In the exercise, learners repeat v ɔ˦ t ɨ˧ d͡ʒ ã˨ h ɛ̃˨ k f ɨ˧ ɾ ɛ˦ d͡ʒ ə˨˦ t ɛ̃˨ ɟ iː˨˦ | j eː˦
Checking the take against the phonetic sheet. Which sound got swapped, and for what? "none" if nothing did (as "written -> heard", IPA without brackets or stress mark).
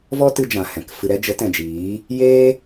ɟ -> d͡ʒ